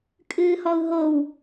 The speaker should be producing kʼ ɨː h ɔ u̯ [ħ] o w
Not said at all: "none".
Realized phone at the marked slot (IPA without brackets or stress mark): ɦ